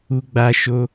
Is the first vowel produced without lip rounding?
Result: no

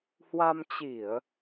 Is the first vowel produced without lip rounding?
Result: yes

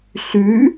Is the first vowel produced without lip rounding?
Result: no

